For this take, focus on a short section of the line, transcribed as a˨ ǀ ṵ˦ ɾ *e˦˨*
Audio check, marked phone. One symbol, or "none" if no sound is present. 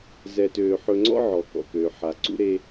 e˦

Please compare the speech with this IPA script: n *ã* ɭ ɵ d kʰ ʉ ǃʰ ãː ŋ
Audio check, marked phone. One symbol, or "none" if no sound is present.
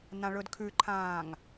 ã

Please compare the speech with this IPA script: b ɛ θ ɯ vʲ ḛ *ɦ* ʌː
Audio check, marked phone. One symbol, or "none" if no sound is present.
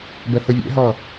ɦ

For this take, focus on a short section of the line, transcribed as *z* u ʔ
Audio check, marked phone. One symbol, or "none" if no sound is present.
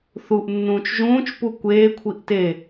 θ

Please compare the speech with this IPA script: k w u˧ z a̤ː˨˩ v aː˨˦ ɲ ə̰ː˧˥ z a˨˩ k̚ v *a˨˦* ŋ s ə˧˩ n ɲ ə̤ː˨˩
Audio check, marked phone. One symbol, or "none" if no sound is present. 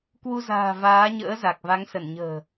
a˨˦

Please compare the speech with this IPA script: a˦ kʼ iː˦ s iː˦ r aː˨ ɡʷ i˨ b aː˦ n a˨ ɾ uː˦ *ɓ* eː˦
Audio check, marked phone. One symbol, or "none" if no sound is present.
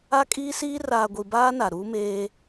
m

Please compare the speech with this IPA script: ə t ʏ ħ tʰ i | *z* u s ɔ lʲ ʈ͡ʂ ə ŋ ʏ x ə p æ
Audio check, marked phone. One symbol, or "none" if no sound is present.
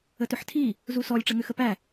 z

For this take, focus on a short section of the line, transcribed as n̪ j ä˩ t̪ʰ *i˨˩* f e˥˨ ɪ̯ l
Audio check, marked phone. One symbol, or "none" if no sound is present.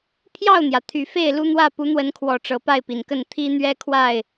y˨˩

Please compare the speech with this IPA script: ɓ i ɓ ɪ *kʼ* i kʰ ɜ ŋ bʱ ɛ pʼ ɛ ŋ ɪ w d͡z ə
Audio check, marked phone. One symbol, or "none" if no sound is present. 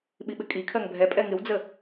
kʼ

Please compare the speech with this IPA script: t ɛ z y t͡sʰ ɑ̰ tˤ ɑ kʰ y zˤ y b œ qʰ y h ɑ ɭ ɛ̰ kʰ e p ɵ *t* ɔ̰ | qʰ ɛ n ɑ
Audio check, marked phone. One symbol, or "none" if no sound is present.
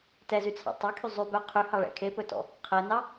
t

